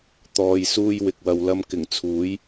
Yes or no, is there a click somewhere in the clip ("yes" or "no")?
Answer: no